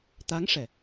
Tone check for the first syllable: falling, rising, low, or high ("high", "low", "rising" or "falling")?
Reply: rising